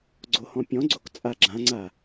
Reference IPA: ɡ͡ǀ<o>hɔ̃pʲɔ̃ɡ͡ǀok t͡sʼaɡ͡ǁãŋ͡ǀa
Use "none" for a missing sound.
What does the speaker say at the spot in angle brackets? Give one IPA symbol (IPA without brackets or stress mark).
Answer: o